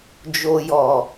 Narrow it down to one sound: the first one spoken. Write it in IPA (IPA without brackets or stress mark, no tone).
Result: d͡ʒ